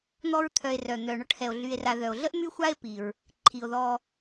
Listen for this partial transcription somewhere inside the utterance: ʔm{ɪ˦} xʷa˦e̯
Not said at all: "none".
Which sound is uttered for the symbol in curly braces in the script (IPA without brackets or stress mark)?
y˦